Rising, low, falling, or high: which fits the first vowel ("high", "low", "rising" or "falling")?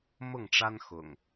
falling